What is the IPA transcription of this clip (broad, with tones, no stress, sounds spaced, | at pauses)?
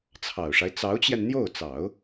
t͡sʰ ɑ˨˩ ʊ̯ ʂ a˦ ɪ̯ t͡s ɑ˧˥ ʊ̯ t͡ɕ j ɛ˧ n n̪ j o˥˩ ʊ̯ t͡s ɑ˨˩˦ ʊ̯